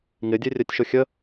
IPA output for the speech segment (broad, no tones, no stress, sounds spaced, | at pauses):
ŋ ɪ dʲ e rʲ œ tʲ ʃ ʊ xʲ ə